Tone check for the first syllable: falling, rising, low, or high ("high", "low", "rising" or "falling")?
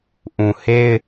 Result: low